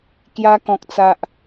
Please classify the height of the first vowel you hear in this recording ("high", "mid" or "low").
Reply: low